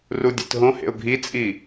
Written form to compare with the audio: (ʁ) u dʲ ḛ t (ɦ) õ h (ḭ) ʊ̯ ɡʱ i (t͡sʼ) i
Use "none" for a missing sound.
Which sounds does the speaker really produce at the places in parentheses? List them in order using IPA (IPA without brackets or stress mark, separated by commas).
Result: r, ɦ, ḛ, t͡sʼ